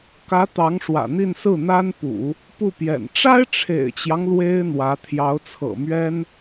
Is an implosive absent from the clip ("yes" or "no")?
yes